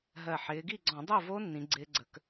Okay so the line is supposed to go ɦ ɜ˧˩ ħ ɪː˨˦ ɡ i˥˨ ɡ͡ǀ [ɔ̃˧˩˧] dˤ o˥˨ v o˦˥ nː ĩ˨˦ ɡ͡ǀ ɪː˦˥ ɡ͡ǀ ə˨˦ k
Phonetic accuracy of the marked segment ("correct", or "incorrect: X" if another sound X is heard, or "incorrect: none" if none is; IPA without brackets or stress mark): correct